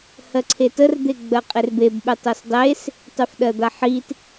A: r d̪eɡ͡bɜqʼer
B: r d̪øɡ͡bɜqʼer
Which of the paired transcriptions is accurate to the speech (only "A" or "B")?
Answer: A